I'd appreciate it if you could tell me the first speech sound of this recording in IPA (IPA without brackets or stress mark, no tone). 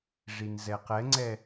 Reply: ʐ